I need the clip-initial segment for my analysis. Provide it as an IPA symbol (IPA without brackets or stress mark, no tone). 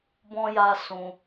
b